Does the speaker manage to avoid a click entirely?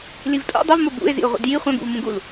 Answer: yes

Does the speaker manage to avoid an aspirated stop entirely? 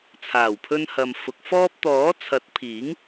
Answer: no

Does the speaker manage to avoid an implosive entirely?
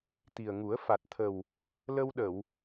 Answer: no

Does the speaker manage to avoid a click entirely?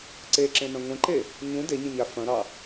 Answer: no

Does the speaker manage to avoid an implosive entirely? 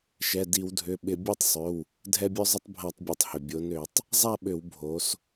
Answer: no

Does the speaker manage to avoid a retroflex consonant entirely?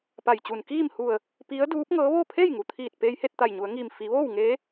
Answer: yes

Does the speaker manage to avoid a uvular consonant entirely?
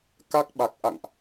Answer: yes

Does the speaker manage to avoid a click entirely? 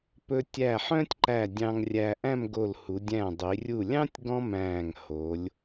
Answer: no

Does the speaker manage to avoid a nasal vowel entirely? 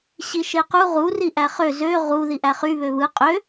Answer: yes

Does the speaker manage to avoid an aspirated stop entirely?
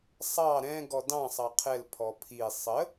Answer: no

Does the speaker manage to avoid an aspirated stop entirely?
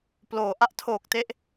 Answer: no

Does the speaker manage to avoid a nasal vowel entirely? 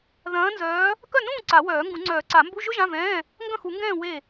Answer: no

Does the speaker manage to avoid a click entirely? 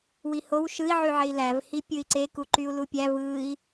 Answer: no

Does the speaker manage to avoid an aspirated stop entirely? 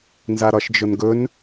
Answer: yes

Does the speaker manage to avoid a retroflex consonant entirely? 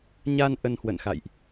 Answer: yes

